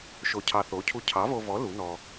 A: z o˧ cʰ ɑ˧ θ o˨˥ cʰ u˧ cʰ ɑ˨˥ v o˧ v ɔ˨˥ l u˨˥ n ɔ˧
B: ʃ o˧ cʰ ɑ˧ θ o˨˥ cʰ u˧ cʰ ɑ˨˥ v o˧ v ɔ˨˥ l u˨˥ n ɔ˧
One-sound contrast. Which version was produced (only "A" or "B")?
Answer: B